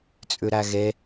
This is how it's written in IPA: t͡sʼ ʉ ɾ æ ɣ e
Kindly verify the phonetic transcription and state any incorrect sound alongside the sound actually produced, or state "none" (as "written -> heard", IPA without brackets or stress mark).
none